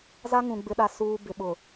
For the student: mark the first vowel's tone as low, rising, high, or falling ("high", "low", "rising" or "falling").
high